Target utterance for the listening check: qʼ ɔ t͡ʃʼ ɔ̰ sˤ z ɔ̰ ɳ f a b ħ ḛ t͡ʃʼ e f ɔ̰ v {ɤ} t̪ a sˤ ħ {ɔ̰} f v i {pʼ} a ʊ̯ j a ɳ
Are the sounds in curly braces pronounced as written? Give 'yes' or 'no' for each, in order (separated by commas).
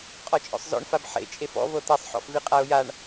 yes, yes, no